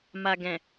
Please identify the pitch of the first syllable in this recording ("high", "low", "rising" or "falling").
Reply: low